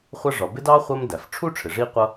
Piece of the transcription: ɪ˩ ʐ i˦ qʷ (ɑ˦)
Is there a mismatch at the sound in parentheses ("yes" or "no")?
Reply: yes